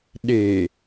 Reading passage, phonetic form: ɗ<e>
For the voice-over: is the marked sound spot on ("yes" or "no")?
yes